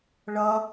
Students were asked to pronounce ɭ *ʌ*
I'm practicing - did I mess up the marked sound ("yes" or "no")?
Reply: no